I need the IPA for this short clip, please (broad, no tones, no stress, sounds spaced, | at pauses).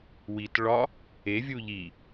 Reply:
w i t ɭ ɒ | e vʲ u ʎ i